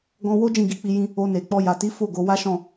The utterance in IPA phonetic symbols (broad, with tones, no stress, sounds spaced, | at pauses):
ɡ ɔ̃˧ w o˦ d͡ʒ ĩ˦˨ ɡ i˧ k͡p i˧ j ĩ˦ | o˧ n e˨ k͡p ɔ˧ j a˨ t i˨˦ f o˦˨ ɡ o˨˦ w a˦ ʃ ɔ̃˦˨